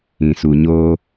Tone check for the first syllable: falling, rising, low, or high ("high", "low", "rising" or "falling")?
low